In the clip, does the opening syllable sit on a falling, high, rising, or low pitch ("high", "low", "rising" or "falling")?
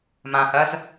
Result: low